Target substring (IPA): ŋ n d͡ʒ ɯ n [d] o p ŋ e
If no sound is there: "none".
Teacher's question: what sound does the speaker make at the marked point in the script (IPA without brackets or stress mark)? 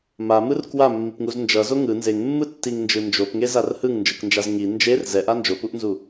d͡ʒ